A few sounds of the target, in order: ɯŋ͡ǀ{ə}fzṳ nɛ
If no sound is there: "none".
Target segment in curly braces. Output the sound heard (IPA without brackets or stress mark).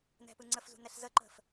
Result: ə